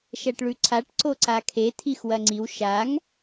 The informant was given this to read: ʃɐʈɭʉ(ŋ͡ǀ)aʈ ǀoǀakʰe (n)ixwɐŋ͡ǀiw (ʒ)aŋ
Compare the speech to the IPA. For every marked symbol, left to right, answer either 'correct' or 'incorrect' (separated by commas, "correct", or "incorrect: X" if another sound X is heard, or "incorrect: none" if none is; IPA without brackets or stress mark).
incorrect: ǀʰ, incorrect: tʰ, incorrect: ʃ